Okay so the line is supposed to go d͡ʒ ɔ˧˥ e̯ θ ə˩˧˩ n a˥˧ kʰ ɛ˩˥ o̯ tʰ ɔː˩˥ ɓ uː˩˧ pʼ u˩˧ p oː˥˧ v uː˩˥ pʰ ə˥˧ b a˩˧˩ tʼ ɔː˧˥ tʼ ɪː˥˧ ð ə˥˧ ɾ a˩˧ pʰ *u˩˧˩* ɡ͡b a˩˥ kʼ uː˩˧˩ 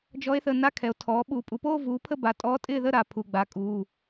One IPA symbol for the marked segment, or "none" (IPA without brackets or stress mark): u˩˧˩